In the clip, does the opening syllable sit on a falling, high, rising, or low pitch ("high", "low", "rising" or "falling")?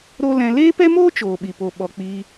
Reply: high